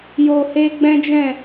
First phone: j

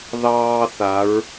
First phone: ð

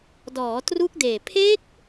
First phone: d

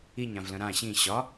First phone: i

